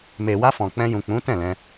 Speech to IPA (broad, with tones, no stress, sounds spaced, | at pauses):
m e˨ w a˧ f ɔ̃˨ k͡p ɛ̃˧ j ũ˨ k͡p ũ˨˦ t ɛ̃˦˨ l ɛ̃˧